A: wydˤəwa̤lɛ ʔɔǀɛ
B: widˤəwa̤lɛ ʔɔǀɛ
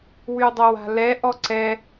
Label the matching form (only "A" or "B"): A